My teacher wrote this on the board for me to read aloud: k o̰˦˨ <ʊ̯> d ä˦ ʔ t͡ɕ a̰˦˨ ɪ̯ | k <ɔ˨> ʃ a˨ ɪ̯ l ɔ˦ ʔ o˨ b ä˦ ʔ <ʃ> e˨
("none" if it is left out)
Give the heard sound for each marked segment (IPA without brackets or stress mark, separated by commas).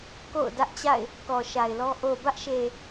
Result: ʊ̯, ɔ˨, ʃ